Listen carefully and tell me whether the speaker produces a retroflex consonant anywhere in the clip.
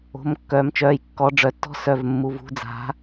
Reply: yes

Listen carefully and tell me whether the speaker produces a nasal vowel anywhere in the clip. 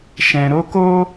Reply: yes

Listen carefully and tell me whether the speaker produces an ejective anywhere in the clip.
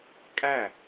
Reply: yes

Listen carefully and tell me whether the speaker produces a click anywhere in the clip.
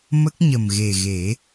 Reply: no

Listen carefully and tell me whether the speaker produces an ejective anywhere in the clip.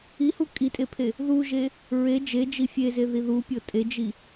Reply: yes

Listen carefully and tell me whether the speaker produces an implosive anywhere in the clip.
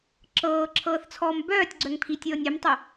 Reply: no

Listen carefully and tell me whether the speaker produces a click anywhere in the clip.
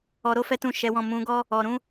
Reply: no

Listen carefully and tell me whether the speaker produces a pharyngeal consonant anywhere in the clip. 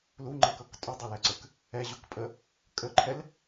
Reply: no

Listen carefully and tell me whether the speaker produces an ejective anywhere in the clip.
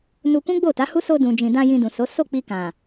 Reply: no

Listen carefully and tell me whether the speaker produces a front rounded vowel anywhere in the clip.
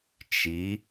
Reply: no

